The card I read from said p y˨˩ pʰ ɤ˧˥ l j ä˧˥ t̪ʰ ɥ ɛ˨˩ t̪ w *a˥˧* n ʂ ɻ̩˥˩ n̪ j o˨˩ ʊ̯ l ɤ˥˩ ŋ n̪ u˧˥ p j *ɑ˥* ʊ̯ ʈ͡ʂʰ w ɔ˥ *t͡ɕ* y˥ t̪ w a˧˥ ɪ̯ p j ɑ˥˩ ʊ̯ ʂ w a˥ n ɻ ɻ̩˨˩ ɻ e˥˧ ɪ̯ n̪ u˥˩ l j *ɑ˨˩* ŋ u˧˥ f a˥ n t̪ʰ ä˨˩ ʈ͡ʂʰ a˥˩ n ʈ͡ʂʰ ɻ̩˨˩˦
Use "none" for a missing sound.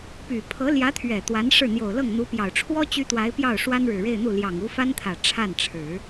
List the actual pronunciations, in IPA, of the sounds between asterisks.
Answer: a˧˥, ɑ˨˩, t͡ɕ, ɑ˨˩

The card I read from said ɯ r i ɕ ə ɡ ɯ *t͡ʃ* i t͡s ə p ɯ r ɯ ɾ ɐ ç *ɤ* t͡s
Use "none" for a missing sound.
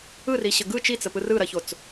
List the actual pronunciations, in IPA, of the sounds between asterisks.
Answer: t͡ʃ, o

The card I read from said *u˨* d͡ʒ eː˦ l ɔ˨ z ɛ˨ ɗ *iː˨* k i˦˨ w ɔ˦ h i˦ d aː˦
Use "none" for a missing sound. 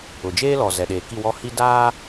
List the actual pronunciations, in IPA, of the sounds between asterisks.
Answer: ʊ˨, eː˨

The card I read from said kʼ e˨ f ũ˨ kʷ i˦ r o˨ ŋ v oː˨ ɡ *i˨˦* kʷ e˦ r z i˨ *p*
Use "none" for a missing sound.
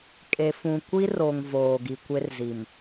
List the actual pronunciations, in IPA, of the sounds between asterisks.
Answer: i˨, m

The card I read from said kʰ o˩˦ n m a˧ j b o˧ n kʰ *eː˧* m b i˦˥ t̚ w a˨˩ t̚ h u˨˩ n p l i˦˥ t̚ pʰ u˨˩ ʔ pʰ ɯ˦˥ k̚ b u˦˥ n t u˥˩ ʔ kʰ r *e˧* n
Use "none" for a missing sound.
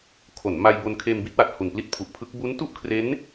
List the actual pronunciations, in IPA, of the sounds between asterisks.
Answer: eː˧, e˦˥

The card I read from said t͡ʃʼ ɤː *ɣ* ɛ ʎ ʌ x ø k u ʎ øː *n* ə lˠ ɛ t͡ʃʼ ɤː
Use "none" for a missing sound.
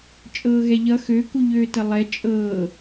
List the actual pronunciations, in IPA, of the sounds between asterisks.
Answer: ɣ, t

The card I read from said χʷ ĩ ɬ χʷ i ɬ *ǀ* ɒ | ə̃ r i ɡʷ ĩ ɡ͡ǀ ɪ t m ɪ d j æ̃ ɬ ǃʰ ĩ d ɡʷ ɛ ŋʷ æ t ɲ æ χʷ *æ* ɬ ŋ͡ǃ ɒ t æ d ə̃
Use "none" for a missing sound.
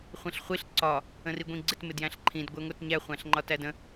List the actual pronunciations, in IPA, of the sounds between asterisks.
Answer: ǀ, æ̃

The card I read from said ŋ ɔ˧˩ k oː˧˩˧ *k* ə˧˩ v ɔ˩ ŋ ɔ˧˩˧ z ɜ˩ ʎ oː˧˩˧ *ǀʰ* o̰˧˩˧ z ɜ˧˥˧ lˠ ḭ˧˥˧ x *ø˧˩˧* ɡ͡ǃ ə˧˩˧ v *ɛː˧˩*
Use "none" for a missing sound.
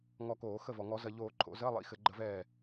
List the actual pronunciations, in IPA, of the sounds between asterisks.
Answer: x, ǃʰ, ɘ˧˩˧, ɛː˧˩

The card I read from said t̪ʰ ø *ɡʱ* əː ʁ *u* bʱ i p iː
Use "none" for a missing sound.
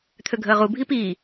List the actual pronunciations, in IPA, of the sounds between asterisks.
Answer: ɡʱ, u

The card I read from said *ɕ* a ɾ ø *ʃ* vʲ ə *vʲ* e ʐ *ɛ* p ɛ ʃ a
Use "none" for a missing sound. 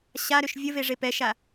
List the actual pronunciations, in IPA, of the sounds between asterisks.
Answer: ɕ, ʃ, v, e

